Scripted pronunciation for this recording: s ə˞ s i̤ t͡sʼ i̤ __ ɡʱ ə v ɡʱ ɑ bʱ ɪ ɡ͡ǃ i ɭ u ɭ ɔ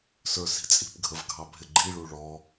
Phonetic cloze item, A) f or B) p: B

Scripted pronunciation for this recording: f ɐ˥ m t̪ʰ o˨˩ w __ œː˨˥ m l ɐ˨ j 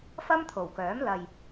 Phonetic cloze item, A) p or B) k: B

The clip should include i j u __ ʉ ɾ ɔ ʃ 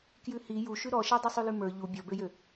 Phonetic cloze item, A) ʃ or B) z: A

